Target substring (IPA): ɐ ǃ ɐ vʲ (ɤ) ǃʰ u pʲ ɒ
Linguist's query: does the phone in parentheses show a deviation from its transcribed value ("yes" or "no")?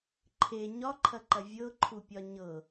no